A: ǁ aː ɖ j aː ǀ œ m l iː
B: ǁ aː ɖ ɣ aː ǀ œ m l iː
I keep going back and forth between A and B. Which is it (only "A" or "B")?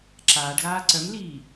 B